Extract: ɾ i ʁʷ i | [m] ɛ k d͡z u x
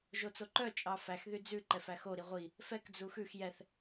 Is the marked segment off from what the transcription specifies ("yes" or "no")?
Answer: yes